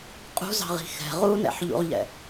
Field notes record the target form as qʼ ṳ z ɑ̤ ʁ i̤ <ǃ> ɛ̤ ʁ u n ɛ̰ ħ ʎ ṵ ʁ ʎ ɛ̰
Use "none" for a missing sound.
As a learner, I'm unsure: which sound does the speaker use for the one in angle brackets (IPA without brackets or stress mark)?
x